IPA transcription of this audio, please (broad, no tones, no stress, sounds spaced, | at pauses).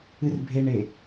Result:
ɨ r bʱ e ɳ e